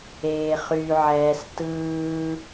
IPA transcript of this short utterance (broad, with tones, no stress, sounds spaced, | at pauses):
eː˩ χ y˩ ʕ ɛː˩ s t ɯː˩